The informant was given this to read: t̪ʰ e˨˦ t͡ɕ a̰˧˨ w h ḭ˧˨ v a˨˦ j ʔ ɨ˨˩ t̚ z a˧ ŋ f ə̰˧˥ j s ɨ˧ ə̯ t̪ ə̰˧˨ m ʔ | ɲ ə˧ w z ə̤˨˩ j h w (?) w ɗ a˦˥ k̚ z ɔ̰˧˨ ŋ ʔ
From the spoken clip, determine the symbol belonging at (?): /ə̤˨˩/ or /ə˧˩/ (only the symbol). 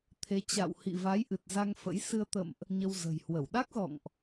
ə˧˩